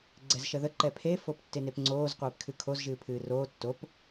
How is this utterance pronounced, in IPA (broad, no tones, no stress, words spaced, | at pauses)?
ɡ͡ǀɛzʃəðə ǃɛpʰe foptːenepŋ͡ǀoːz qʷeːpkʰɨkʰoz ʒɨːpʰɨːroː tːop